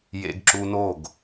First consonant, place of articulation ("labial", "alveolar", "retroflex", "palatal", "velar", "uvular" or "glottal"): palatal